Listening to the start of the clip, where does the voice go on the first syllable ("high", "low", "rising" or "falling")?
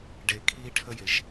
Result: low